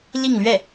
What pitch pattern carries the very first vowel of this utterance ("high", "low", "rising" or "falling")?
falling